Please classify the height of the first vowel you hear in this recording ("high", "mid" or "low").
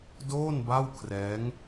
mid